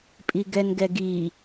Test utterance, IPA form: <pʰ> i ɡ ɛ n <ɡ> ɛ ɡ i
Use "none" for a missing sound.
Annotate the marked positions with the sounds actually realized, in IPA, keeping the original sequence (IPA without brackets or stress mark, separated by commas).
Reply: pʼ, ɡ